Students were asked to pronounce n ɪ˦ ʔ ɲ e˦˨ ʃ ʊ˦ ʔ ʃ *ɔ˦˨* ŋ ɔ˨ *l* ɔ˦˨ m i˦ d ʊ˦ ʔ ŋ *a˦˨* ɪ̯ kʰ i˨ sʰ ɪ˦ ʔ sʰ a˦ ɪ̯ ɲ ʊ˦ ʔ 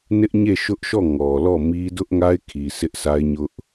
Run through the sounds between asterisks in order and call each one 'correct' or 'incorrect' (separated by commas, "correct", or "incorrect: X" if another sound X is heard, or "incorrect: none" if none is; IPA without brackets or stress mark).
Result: correct, correct, incorrect: a˦